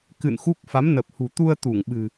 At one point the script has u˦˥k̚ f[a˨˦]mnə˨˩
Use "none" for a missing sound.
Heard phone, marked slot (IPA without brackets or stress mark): a˨˦